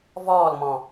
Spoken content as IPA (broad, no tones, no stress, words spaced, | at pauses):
vɔːlmɔ̃